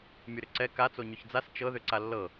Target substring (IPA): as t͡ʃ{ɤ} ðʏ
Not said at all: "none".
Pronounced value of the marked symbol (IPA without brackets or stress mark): ɤ